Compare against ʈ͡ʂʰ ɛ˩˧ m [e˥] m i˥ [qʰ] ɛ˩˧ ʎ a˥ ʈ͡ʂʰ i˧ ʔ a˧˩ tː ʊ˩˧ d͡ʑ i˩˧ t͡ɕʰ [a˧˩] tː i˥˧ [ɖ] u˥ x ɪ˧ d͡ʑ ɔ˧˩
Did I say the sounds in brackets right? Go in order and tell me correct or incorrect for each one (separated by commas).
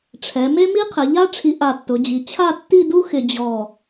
correct, correct, incorrect, incorrect